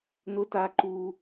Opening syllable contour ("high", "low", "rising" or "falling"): high